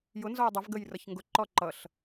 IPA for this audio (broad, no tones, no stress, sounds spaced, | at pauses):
j ʊ n z ɔ j dˤ ʌ v ɡ ə j r ʌ ç ŋ ɡ ʊ ǃ ɔ ǃ ʌ ɬ